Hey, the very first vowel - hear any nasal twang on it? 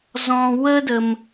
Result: yes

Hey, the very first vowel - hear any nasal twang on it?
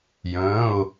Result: yes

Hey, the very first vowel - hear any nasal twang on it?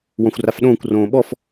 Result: yes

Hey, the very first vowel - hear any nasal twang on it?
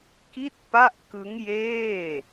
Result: no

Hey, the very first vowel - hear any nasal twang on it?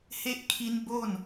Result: no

